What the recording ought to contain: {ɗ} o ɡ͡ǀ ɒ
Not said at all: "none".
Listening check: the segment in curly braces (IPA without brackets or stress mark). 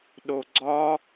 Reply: ɗ